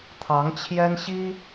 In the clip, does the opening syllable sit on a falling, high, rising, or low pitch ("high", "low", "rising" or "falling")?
rising